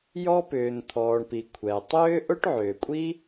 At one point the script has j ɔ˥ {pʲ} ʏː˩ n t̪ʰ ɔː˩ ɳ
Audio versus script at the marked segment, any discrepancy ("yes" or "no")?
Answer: yes